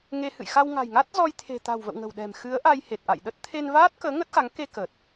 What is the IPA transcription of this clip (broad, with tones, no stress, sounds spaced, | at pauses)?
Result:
ŋ e˧ h ɨ̰˧˨ j x a˧ w ŋ a̤˨˩ j ŋ a˦˥ t̚ z ɔ˧ j t̪ʰ e̤˨˩ t̪ a̤˨˩ w v ə̰˧˨ w ŋ ə̤˨˩ w ɗ ɛ̤˨˩ m x ɨ˨˦ ə̯ ʔ a˧ j h e˨˩ t̚ ʔ a̰˧˨ j ɗ ə˦˥ t̚ t̪ʰ e˧ n v aː˦˥ t̚ k əː˨˦ ŋ ə˦˥ t̚ x a˨˦ ŋ k e˧ k ə˨˩ t̚